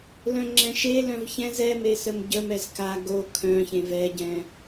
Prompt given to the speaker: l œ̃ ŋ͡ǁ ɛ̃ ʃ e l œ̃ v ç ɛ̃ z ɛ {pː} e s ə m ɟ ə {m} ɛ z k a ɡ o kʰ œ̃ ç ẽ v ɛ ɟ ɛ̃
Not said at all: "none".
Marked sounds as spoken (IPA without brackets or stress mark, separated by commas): m, m